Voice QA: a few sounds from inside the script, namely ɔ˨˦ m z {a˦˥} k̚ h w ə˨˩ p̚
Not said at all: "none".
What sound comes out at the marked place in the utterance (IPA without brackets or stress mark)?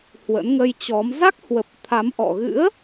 a˦˥